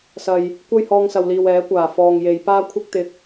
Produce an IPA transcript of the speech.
s ɐ˨ j | kʷ ɐ˥ j h ɔː˧ ŋ s ɐ˨ w l iː˨ w ɛː˨˥ kʷ aː˨˩ f ɔː˨ ŋ j e˨˧ j p aː˥ kʷʰ ɪ˥ k̚ t̪ ɪ˧ k̚

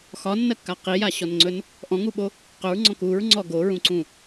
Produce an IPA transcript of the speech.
x ɒ nː ɜ kː a q i j a ɕ ɔ n ŋ͡ǀ ɵ n | ʔ ɔ̃ ŋ u ɓ o | q ɵ ɹ ŋ͡ǀ ɔ̃ k u ɹ ŋ͡ǀ ɔ ɡ o ɹ ũ ǀ ũ

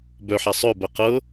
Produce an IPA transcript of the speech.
b œ ħ a sˤ œ b ɜ q ɤ

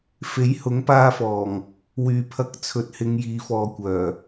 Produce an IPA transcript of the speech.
f e˨˥ j h ʊ˨˥ ŋ p aː˧ f ɔː˨˩ ŋ | w yː˨ pʰ ɐ˧ k̚ t͡sʰ ɵ˨˥ t̚ h ɪ˨˧ ŋ j iː˨˧ f ɔː˨ kʷ œː˨˩

